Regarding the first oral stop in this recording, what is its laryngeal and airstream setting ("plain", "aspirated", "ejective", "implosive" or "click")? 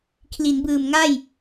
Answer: aspirated